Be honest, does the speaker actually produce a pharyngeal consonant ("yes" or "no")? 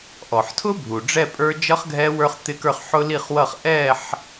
yes